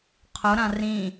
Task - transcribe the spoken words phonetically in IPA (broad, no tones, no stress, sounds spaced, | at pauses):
qʰ ʊ ɾ ã r ĩ